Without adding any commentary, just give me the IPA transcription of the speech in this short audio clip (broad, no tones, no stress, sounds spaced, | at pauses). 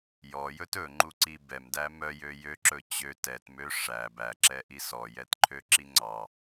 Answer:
j ɔ j ɵ t ɵ ŋ͡ǃ u ǀ i b ɛ m d æ m œ j ø j ø ǁ ɵ t͡ɕ ø t ɛ t m ø ʂ æ b æ ǁ ɛ ʔ i s ɔ j ɛ t ǃʰ ø ǁ i ŋ͡ǀ ɑ